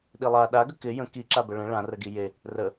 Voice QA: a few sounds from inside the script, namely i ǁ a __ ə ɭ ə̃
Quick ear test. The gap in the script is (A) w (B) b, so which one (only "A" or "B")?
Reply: B